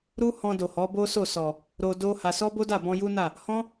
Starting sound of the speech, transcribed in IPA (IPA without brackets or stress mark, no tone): ɾ